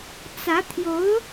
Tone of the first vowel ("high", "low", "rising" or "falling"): rising